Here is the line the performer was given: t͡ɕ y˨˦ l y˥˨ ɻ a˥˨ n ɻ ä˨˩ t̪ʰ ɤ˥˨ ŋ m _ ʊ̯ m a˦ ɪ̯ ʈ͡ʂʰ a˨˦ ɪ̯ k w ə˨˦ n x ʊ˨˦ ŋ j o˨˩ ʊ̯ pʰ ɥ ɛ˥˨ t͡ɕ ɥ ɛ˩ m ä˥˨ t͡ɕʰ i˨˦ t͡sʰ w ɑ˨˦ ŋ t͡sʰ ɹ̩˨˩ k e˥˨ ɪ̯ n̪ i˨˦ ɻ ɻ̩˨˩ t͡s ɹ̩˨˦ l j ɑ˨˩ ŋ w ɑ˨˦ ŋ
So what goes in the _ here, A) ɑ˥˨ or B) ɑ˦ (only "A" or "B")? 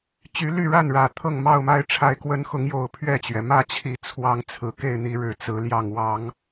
A